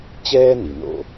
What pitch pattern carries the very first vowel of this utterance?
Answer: high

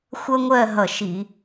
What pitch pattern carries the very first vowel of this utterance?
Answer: high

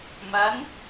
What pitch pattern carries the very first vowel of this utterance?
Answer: rising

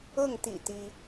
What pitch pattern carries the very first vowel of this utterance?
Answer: falling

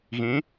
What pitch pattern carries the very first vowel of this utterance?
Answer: rising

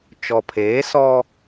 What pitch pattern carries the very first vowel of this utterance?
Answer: low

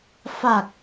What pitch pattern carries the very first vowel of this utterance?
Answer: low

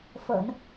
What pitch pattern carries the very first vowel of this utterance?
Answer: low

